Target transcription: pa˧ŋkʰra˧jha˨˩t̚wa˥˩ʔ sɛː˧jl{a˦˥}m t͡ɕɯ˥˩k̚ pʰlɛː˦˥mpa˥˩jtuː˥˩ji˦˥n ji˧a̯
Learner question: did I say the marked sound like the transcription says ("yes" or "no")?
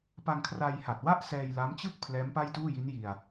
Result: yes